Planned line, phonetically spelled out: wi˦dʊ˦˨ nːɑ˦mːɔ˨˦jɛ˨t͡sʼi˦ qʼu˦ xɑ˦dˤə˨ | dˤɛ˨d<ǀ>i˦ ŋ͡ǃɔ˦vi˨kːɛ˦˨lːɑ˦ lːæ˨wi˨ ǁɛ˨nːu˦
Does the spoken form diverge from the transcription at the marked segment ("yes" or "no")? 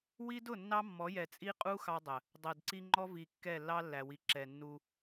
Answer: no